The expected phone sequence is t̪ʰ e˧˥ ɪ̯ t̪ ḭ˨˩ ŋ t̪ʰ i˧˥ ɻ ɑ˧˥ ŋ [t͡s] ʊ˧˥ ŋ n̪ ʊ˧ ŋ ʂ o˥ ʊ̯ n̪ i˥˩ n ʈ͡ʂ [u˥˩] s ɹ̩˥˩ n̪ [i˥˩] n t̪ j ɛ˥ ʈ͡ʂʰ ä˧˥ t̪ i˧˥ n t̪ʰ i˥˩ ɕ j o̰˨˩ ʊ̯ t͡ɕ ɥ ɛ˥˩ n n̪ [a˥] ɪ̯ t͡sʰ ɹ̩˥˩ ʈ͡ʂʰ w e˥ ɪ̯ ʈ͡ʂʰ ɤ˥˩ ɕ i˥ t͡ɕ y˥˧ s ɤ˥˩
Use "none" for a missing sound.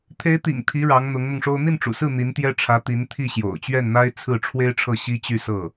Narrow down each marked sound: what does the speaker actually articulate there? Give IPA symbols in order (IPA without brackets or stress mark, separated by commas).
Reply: n̪, ṵ˨˩, i˧˥, a˥